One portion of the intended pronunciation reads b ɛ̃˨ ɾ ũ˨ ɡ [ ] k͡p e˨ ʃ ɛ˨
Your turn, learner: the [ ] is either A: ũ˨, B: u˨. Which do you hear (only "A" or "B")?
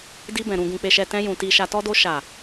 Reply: A